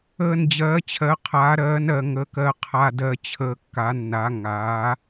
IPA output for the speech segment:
əː˨˩nd͡ʑɜː˩˧t͡ɕʰɜ˩˧ qʰaː˩˧ɾɜː˩˧nɜ˨˩ŋəː˩˧k ɜ˨˩qʰa˨˩dɜ˨˩ t͡ɕʰəː˨˩kːa˩˧nːa˩˧ ŋaː˩˧

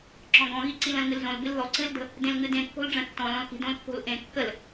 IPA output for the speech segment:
ǁɔ̃ɡɔ̃ɣi ǀilə̃lŋɨlzõl bɨlðɔ ǀɨldə̤ | dẽlŋɨdẽ kːo̤lɖ͡ʐə̃tːɔ̃l ɔ̃lki̤ dõlpːo̤lʔẽ kːəl

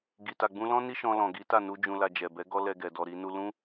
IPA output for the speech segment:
ɡi˧ta˧ɡ͡bũ˦ lɔ̃˦ ni˦ʃɔ̃˧lɔ̃˨ ɡi˨˦ta˦˨nu˧ d͡ʒũ˧la˧d͡ʒɛ˨ bɛ˨˦ ɡɔ˦lɛ˧ɡɛ˨ dɔ˨ɾi˧nu˧ lũ˦

